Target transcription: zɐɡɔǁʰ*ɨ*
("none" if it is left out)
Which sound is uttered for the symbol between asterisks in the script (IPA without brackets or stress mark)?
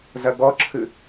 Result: ɨ